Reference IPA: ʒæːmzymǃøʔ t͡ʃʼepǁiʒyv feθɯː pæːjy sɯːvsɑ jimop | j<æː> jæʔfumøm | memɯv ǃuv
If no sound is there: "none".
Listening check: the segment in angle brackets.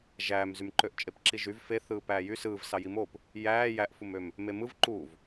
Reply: æː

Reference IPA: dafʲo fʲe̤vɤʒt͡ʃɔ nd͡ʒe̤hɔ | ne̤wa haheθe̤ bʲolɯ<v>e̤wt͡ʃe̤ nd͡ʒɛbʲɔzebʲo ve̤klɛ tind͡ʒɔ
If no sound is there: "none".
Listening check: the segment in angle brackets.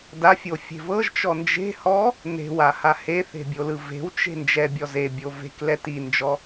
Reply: v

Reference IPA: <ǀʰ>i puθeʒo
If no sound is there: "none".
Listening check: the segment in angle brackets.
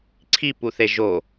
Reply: ǀʰ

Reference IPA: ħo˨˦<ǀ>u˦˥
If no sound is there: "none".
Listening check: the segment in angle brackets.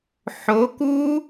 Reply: k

